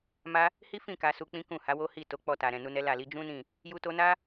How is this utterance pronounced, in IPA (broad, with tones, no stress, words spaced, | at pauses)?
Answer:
ma˦ | hi˦fĩ˦˨ ka˧su˧k͡pĩ˦ kũ˦˨ ha˨˦wo˦ hi˦˨to˨˦ k͡pɔ˧ta˨ɾɛ̃˨ nu˧nɛ˦la˦˨li˨˦ d͡ʒũ˦nĩ˦˨ | ju˧to˧na˦